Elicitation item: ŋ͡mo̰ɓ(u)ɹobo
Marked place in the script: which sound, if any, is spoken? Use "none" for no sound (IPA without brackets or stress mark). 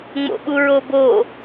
u